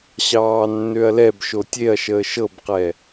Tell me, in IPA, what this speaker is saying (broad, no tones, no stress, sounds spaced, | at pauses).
ɕ ɑː nː ø ɐ̯ l ɛ b ʃ o tʲ e ɐ̯ ʃ əː ʃ ɤ b q ɛ